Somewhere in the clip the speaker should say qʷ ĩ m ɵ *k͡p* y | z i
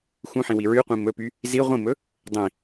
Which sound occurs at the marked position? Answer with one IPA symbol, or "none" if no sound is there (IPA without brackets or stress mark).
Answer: p